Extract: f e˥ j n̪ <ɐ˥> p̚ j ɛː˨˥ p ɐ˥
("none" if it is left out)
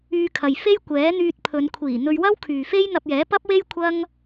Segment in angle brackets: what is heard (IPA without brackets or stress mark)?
ɐ˧